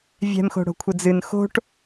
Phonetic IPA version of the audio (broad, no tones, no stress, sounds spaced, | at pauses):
vʲ ɛ̤ m x o̤ ɽ o̤ kʷʰ ɘ d͡z ɨ n x o̤ ʈ